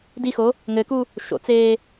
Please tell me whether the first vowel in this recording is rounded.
no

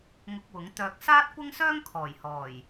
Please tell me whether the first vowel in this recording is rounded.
yes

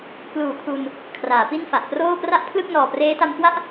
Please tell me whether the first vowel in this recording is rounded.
yes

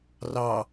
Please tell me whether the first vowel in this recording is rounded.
no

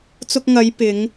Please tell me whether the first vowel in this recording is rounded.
yes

